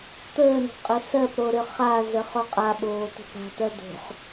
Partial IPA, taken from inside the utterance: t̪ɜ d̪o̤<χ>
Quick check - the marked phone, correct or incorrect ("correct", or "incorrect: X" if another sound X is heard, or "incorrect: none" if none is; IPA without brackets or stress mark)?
correct